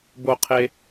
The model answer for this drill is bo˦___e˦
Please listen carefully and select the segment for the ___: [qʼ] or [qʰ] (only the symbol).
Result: qʰ